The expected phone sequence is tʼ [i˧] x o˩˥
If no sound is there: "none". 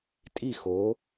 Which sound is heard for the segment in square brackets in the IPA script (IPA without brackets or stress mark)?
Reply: i˥˩